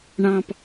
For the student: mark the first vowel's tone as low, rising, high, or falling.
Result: low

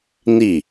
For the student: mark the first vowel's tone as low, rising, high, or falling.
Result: falling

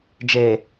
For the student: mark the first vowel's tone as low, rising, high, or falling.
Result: low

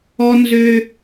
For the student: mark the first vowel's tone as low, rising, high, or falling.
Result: high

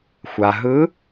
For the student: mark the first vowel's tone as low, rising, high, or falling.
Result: low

